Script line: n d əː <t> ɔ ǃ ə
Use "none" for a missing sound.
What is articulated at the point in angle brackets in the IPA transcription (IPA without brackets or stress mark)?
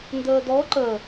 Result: d